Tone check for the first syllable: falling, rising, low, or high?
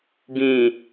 low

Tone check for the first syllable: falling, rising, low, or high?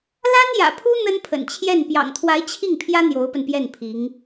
high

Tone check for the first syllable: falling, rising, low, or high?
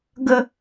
falling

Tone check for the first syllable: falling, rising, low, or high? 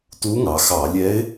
rising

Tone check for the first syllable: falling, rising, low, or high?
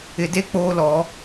low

